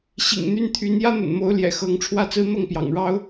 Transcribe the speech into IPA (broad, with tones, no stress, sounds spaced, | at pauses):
ɕ ḭ˨˩ ŋ n̪ y˥˩ n t̪ʰ y˧˥ n j ä˥ n̪ ə̰˨˩ n m o˧˥ ʊ̯ l j ɛ̰˨˩ x ɤ˧˥ ŋ ʈ͡ʂʰ w ä˥˩ t͡s ɹ̩˥ n̪ ɤ˥˩ ŋ p j ɑ̰˨˩ ŋ ɻ ɑ˥ ʊ̯